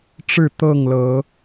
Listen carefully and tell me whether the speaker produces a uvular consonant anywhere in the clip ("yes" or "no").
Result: no